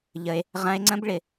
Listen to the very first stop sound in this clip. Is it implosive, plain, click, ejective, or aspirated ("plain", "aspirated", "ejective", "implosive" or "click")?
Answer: click